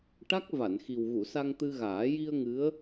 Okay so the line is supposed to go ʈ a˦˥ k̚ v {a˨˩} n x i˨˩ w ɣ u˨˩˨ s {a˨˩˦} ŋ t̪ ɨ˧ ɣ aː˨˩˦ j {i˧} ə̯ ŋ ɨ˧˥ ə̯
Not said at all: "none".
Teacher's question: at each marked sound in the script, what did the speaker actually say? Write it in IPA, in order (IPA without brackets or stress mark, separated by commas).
a˨˩˨, a˧, i˧